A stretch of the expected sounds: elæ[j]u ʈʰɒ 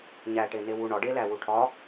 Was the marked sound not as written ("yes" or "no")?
yes